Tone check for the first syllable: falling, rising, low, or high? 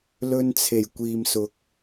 high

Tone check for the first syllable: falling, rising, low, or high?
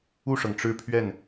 falling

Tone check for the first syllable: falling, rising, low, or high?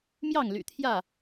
falling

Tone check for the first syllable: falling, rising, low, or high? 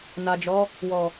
low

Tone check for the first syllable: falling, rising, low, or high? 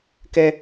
high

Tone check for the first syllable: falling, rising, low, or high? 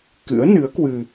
rising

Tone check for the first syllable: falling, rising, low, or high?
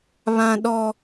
high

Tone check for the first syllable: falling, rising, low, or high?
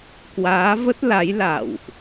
rising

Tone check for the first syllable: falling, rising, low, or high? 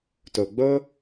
low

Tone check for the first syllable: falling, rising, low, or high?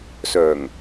low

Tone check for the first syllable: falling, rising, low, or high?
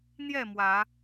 falling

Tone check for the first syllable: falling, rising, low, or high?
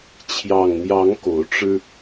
low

